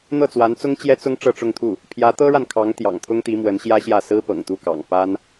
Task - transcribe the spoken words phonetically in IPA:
n̪ ɤ˥˩ t͡s w a˧˥ n t͡s ʊ˥ ŋ t͡ɕ j ɛ˥ t͡s ʊ˥ ŋ ʈ͡ʂ ɤ˥˧ ʈ͡ʂ ʊ˥˧ ŋ t̪ʰ u˥˩ | pʰ j ä˧˥ t̪ ɤ˥ ɻ a˨ n kʰ ɑ˧˥ ŋ t̪ j ɑ̰˨˩ ŋ t̪ʰ ʊ˥ ŋ t̪ i˧˥ m w ə˧˥ n ɕ j ä˥ ɕ j ä˥˩ s ɹ̩˥ p ɤ̰˨˩ ŋ t̪ u˥˩ k ɑ̰˨˩ ŋ p a˥ n

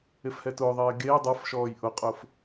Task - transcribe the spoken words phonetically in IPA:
e f h ɛ t ʊː ðˤ eː ɡ eː dˤ ʌ f ʃ ɔː j ʔ ʊ qʼ ʊː f

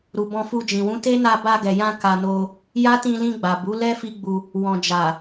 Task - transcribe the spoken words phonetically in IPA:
ɾ u˨ b ɔ̃˧ f u˧ d͡ʒ ĩ˨ w ũ˨˦ t e˦ n a˧ b a˧ ɡ ɛ˨ j ã˧ k a˧ n o˧ | j a˦ t ĩ˧ l ĩ˧ ɡ͡b a˨ b u˨˦ l ɛ˦ f i˦ ɡ͡b u˧ | w ɔ̃˨ d͡ʒ a˨

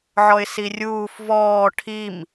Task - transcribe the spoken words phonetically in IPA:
ʕ ɔ ɪ̯ s i rʲ uː f v ɔː ʈʰ i m

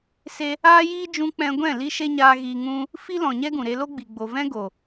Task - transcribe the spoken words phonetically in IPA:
s e˧ | aː˦ j iː˦ d͡ʒ ũ˧ k͡p ɛ̃˧ ɡʷ ɛ̃˦˨ l i˦ ʃ e˦ ɲ aː˧ ɣ iː˧ ŋ ũ˦ | f i˦ l ɔ̃˨ ɲ ɛ˦ ɡ ũ˨ ɾ e˧ l o˦ ɡ͡b i˨ ɡ͡b o˨ v ɛ̃˦ ɡ o˨

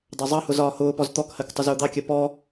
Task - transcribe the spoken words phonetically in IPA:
dˤ ɜ zˤ ɑ h ʊ z ɒː h ʊː p ɔ z t̪ ɔ k h ɜ k tˤ ʊ z ʊː d̪ ɑ kʲ ɜ p ɔ

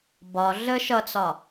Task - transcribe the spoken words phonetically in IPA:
b ɒ ɮ ə ʃ ʌ t͡s ɒ

